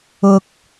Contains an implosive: no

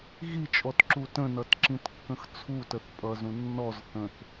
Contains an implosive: no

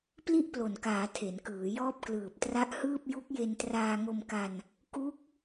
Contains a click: no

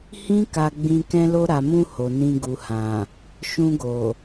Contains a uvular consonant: no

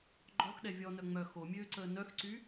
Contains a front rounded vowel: yes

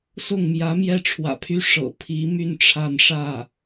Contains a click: no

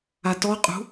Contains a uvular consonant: yes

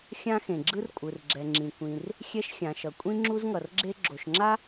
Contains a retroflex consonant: no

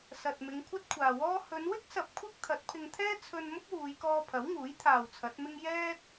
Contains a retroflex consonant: no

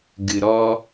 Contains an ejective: no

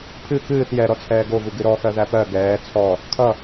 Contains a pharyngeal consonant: no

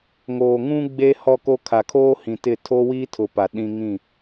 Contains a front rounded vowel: no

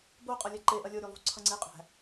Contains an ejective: yes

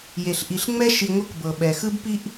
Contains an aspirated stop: no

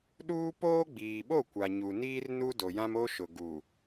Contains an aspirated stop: no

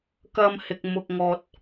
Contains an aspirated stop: no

